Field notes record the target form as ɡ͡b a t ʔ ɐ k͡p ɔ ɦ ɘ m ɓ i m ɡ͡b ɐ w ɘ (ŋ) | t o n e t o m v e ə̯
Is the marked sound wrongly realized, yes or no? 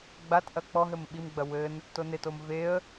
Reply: yes